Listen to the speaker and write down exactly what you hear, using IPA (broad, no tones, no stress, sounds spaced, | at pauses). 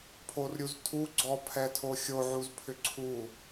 pʰ o r ɾʲ u z tʰ u ɡ͡ǀ ɔ pʰ ɛ tʰ o xʲ o ʕ u z pʰ ʏ ǀʰ u